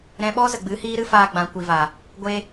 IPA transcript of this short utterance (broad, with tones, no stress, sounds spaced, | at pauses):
ɾ ɛ̃˧ ɓ ɔ˦ z ə˨ ɡ͡b ɨ˨˦ h iː˦ ɾ ɨ˦ f aː˧ ɡ͡b ã˨ kʷ i˨ v aː˨ | ɡʷ eː˧